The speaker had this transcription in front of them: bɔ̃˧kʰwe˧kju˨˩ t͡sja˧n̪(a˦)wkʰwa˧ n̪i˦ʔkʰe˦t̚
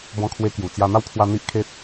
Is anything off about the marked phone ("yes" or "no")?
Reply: no